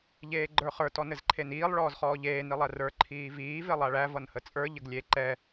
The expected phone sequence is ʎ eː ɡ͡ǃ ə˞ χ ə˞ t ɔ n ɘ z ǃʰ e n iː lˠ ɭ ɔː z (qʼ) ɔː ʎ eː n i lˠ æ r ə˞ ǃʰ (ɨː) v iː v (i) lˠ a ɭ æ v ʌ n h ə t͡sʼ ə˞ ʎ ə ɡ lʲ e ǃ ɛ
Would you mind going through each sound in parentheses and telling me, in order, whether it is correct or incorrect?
incorrect: χ, incorrect: iː, incorrect: e

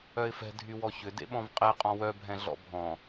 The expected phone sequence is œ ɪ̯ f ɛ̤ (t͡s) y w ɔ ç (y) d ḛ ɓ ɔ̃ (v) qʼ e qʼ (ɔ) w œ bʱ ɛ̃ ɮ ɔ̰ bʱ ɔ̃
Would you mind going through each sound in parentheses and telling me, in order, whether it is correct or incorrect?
incorrect: dʱ, incorrect: ʏ, correct, incorrect: ɔ̃

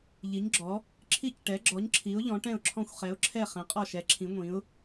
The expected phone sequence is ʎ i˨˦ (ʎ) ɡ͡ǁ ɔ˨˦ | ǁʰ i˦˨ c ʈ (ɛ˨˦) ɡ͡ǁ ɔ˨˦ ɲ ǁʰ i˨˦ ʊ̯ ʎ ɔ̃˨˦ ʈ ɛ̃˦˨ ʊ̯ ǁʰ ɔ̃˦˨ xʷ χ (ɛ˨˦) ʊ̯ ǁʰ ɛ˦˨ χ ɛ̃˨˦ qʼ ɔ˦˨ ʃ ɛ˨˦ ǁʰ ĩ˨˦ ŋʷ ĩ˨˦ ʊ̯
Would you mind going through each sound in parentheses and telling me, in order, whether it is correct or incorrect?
incorrect: ɲ, correct, correct

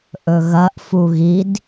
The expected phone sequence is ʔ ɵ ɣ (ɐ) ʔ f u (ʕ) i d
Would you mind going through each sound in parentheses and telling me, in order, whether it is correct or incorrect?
correct, incorrect: ɣ

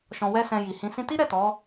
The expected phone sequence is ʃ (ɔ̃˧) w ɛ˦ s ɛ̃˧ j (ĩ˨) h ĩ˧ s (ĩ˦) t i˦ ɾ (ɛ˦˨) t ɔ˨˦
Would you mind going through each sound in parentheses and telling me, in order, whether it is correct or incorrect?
correct, incorrect: i˨, correct, correct

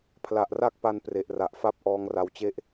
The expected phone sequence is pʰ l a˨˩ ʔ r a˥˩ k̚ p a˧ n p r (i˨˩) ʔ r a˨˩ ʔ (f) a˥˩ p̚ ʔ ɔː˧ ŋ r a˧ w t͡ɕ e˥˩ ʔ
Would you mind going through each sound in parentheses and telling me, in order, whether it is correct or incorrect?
incorrect: e˨˩, correct

